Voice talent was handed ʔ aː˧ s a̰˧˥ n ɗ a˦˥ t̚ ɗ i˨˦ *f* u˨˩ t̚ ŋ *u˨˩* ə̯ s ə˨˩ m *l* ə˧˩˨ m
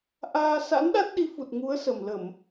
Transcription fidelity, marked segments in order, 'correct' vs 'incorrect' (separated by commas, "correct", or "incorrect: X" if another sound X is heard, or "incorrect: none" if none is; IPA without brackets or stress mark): correct, incorrect: u˨˦, correct